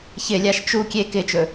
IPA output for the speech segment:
ç ɪ lʲ a ʃ t͡ʃ u kʲ e k ɪ t͡ʃ ɵ

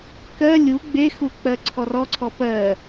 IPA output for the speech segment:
k ɜ lʲ u ɡ͡b e x u k͡p ɜ ǀʰ ɔ r ɔ ǀʰ ɔ p ɜ

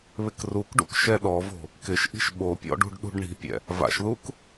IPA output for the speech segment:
β ɪ k r u k ɖ ṵ k ʃ ɛ ɗ ɔ v o̤ | k ɪ ʃ ʔ i̤ ʃ ɓ o pʲ ɔ̰ ɖ ṳ ɖ ɗ ṳ ɖ ɳ i̤ pʲ ɛ̰ | v a̰ ʃ ð u k

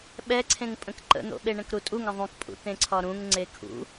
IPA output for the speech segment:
ɓ ɛ ǀʰ ẽ ŋ pʼ ə̃ k ǃ ə̰ n̪ o̰ ɓ e ɳ ə̃ k ɾ u tʼ u ŋ ə̃ ðˤ ũ k pʼ ṵ t̪ ẽ ǀʰ ɒ ɾ ũ ŋ ŋ͡ǀ e kʰ ṵ

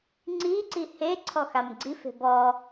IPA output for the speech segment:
ŋ͡ǀ i ǀ i h e ǀʰ ɔ x a m ɡ͡ǀ i f e̤ b ɔ

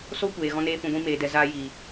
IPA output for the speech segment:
s oː˦ kʷ eː˨ ɣ ɔ̃˧ n eː˧ f ũ˨ ɡʷ ĩ˧ m eː˨ d ɛ˨ z aː˦ j iː˨

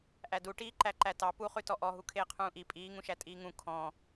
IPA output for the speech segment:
ʔ æ d u ʈ iː ǃ æ ǃ æ t ɑ p u χ ʉ t ɔ ʔ ɔ ɦ u kʰ eː qʰ ũː ʔ i pʼ iː ŋ ũ ʃ æ tʼ iː ŋ ũ kʰ ɔ̃

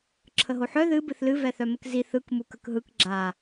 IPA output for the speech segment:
ǁʰ ə ɦ o ħ œ ð ɨ b ɨ θ l ɨ v ɛ θ œ m ə k z i θ ɯ k m u k ə k ɦ ɯ k ɡ͡ǁ a

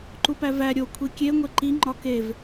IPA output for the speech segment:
ǃ u p æ v æ ɾʲ o kʷʰ i kʲ e ŋʷ e ǃ i ŋ͡ǃ ɒ k e v

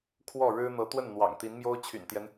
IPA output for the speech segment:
kʰ w ɔ˥˩ ɻ ɻ̩˥ n̪ ɤ˧˥ t̪ w ə˥˩ n n̪ w ɑ̰˨˩ ŋ t̪ i˧˥ n m j o˥ ʊ̯ t͡ɕʰ y̰˨˩ n t̪ j ɛ˦ n

